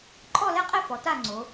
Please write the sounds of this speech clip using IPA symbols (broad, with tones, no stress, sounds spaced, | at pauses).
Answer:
ǃʼ ɔ˥˧ l ɛ˥˧ qʼ ɛ˥˧ f ɔ˩˧ t a˥˧ ŋ͡ǀ o˩˧